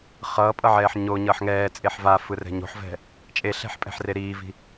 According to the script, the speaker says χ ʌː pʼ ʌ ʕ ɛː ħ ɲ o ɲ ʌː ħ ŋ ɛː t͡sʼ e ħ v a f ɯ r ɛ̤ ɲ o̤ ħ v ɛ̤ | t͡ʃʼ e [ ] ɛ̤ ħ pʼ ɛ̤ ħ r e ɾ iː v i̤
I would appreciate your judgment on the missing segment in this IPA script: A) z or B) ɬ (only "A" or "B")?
B